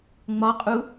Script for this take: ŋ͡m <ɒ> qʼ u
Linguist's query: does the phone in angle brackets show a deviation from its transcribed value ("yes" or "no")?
no